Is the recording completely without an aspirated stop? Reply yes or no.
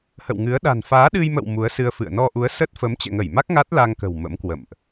yes